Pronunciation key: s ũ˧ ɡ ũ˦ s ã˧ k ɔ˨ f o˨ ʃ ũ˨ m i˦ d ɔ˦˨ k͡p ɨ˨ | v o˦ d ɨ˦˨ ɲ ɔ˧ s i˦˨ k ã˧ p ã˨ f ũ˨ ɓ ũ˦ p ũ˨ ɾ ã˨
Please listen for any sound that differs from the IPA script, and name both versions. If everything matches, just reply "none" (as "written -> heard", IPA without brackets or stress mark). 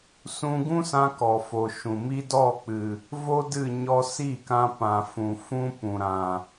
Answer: ɓ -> f